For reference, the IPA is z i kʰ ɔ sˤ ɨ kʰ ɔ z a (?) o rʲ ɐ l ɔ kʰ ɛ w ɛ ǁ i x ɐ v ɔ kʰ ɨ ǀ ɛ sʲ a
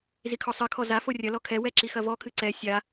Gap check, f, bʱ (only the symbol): f